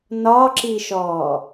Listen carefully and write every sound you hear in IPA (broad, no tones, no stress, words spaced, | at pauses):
nɒǁiʃɔː